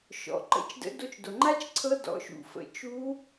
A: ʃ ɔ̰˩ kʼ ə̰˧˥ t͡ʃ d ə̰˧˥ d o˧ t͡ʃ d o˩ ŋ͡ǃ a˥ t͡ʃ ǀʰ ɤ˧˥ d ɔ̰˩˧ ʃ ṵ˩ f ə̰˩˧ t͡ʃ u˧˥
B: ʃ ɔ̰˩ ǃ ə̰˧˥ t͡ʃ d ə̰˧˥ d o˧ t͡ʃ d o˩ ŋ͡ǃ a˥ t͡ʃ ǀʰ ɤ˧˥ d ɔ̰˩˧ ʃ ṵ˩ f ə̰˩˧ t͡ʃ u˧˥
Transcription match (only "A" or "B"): B